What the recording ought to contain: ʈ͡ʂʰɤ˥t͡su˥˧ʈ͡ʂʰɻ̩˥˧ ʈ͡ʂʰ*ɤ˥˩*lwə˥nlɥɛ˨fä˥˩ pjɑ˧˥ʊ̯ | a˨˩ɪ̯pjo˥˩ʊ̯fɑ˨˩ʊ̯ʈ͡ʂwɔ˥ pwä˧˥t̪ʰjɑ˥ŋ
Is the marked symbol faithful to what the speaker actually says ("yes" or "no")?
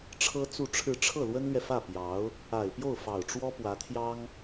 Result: yes